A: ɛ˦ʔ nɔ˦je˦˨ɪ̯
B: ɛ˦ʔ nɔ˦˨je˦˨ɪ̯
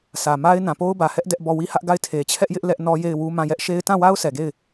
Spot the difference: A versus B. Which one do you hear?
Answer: A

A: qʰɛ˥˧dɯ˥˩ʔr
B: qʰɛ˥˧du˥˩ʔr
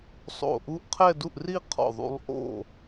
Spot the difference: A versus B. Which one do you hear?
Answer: B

